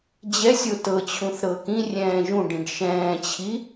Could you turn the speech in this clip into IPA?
d͡ʑ ɛ sʲ o t ɤ t͡ɕʰ ũ θ ɾ ɤ k ĩ rʲ ɛ̃ː ʒ ũ ɖ ĩ ɖ ʃ ɛ̃ː t͡ɕʰ i

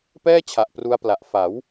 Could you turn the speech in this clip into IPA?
p ɛː˥˩ t͡ɕʰ a˨˩ ʔ p r u˦˥ a̯ p l a˨˩ ʔ f a˩˦ w

